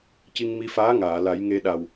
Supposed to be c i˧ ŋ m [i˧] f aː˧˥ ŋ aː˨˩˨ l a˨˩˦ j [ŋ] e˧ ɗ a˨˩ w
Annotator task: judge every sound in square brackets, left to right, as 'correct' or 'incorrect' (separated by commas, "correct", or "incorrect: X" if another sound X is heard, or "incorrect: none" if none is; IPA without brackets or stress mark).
correct, correct